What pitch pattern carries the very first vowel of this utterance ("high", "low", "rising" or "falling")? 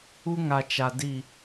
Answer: high